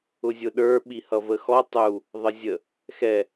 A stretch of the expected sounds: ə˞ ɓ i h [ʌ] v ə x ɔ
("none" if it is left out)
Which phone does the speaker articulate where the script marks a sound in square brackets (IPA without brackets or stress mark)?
ʌ